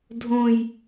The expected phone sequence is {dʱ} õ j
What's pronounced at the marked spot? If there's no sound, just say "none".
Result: dʱ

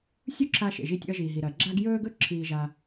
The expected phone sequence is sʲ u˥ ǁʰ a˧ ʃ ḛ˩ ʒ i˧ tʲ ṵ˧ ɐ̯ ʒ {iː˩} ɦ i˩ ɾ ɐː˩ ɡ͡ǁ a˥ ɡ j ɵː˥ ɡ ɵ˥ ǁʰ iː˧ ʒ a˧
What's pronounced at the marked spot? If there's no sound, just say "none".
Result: iː˩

